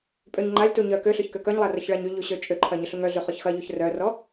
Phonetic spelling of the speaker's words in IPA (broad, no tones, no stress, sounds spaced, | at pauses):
pʼ ø ɲ ŋ͡ǃ a lʲ t u ɲ œ k ø ɬ ø ç k ø k œ ɲ lˠ a r ɐ ç ɭ a ɲ y ʎ u ɕ ø t͡ʃʼ ʏ ǃʰ ɐ ɲ ʏ ɬ u ŋ œ ɮ y χ ɔ ç x ɐ ʎ u ç r œ r ɔ